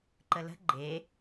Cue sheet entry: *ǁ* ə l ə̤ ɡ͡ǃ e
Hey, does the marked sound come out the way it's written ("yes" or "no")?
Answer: no